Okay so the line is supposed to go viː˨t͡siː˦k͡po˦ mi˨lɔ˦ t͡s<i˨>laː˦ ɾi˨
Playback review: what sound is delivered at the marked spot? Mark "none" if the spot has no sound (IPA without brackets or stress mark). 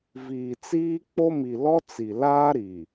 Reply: i˨